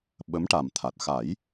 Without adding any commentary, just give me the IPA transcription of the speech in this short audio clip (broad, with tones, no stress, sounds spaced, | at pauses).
ɓ ə˧˥ m ʈ a˨˩ m t̪ʰ a˨˩ t̚ x a˨˩˦ j